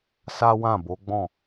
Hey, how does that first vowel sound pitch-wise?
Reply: high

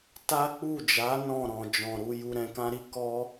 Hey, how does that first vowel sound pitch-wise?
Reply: high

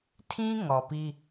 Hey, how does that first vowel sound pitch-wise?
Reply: high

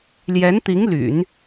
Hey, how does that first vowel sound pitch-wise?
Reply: rising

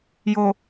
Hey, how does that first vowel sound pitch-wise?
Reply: low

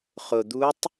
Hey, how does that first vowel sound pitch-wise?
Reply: low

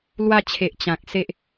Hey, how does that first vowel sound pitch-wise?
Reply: falling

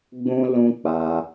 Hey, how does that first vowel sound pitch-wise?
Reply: high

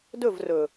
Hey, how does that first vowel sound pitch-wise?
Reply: falling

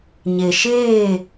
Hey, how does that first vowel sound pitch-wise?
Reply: low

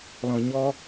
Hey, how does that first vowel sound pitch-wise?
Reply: low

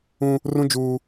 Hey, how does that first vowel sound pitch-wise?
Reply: high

